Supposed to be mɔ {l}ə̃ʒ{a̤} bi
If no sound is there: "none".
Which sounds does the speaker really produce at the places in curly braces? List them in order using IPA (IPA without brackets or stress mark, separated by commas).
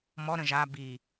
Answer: ɾ, a